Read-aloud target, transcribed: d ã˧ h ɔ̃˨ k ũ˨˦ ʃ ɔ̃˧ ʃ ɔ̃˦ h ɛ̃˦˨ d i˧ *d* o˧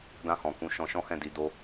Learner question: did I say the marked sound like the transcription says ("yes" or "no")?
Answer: yes